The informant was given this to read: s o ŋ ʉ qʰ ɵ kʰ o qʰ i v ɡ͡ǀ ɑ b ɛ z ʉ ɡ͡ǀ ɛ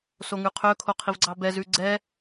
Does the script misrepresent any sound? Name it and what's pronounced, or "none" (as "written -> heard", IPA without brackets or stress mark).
none